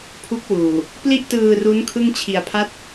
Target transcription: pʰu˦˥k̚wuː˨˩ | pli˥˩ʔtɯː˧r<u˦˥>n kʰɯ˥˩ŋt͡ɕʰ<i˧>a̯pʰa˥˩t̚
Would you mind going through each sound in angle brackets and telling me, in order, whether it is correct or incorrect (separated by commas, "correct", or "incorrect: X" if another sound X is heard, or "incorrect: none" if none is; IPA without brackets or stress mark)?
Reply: correct, correct